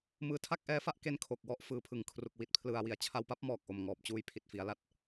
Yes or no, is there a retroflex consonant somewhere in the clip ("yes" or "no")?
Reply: no